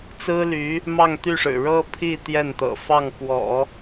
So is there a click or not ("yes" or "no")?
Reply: no